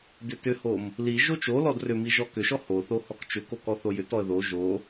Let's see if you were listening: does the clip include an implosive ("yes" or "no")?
no